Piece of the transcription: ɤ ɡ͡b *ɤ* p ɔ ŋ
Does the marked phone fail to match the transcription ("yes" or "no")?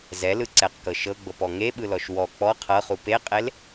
no